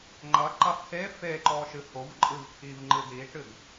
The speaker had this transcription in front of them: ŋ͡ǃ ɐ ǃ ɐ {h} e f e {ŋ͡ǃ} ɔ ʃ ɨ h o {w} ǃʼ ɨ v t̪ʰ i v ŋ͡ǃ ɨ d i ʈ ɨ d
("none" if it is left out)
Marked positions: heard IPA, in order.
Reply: h, ǃ, v

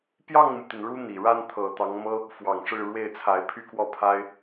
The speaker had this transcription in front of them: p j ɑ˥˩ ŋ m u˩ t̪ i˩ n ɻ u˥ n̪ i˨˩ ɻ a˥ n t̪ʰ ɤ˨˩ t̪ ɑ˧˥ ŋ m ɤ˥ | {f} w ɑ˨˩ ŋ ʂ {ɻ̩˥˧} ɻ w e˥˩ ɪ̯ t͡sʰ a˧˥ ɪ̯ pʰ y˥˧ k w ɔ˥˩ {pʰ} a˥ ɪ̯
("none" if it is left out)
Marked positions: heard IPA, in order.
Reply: f, ɻ̩˥˧, pʰ

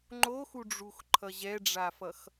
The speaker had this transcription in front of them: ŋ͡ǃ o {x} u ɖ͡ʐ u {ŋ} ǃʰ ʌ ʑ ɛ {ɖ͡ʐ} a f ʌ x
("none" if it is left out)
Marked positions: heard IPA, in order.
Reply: x, x, ɖ͡ʐ

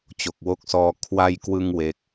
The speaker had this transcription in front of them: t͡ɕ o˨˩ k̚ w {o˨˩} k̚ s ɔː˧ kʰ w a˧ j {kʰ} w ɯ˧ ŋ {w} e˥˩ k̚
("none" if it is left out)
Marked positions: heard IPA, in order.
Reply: o˦˥, k, w

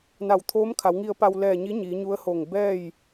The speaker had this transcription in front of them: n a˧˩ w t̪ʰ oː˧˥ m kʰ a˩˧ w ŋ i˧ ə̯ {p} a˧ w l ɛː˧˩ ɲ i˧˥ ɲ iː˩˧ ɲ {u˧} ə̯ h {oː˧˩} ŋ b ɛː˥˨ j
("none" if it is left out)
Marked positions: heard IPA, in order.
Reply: p, u˧˥, oː˧˩

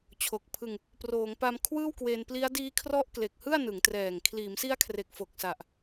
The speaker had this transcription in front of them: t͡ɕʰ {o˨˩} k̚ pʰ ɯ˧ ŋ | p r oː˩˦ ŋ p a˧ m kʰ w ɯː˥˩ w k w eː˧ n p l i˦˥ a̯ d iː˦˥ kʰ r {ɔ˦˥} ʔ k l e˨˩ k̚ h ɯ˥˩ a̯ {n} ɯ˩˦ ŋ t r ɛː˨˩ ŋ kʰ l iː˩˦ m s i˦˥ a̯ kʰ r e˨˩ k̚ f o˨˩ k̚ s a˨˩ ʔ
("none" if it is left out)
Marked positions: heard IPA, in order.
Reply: o˨˩, ɔ˦˥, n

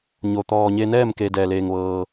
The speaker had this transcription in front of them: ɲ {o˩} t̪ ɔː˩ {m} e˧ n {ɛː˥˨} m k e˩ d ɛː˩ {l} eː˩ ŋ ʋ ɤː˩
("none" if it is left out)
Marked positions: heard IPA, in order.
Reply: o˩, ɲ, ɛː˥˨, l

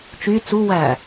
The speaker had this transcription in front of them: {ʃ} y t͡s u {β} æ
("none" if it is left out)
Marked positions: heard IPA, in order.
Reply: t͡ʃ, w

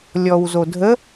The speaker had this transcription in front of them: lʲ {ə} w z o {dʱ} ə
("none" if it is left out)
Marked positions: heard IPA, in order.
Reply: ɔ, dʱ

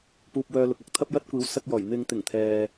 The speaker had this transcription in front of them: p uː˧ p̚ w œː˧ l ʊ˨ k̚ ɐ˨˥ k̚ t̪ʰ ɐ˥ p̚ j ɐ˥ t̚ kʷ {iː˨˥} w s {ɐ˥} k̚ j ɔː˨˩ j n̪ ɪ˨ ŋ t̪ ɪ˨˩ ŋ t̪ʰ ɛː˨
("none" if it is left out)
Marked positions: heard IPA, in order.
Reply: iː˨˥, ɐ˧

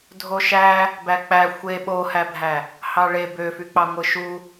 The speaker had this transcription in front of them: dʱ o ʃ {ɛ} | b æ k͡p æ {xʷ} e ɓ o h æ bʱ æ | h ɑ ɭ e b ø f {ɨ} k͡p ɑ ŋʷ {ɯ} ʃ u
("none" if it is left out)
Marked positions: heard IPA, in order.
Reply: æ, xʷ, y, ɯ

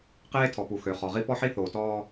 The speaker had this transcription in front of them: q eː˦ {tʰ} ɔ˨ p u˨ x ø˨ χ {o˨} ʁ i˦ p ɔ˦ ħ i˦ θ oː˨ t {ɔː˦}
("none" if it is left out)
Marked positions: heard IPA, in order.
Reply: tʰ, ɔ˨, ɔː˦

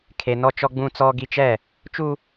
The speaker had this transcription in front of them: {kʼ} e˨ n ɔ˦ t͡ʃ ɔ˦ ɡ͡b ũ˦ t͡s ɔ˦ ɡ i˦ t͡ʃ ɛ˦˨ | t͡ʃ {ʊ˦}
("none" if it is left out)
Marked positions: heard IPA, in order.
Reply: kʰ, u˦

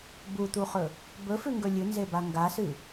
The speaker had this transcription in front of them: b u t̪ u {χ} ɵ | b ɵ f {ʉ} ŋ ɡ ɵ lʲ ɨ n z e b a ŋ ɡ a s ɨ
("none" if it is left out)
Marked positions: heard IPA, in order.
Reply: χ, ʉ

